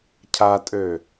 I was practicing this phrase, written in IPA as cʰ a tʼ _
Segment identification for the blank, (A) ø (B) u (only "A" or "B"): A